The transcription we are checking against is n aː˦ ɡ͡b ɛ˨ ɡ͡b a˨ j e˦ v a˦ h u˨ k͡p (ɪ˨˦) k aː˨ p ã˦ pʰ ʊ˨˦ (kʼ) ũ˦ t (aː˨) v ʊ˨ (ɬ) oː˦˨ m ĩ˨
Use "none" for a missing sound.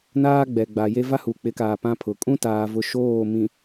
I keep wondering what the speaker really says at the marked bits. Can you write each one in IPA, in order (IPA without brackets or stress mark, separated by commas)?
ɪ˨˦, kʼ, aː˨, ʃ